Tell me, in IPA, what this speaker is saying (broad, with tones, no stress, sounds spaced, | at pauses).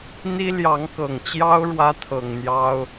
n̪ i˥ l j ɑ˧˥ ŋ k ɤ˨˩ ŋ t͡ɕ j ɑ˥ ʊ̯ ɻ w ä˥ t̪ʰ ɤ˨˩ ŋ n̪ j ɑ˥ ʊ̯